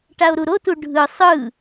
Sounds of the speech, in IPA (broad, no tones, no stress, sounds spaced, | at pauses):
ʈ a o̯ ɾ u ɾ o t u ɖʱ ɯ sˤ ɯ